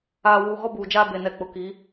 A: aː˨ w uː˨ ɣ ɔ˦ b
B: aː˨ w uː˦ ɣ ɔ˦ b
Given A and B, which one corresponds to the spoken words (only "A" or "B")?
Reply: A